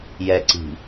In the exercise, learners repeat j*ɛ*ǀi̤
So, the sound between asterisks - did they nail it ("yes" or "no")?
yes